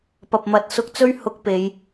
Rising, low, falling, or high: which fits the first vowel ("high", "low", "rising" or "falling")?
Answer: low